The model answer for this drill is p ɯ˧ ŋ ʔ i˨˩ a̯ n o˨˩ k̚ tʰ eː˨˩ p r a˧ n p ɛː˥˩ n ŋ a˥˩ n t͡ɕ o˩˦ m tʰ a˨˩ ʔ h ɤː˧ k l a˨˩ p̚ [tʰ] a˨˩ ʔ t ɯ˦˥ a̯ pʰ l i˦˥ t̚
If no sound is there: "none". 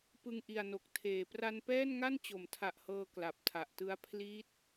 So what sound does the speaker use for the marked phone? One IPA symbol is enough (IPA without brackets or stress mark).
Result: tʰ